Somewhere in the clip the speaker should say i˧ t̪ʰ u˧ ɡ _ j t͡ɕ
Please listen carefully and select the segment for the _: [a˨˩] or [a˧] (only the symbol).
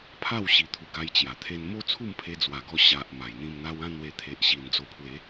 a˧